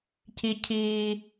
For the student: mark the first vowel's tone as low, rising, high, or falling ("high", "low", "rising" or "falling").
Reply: low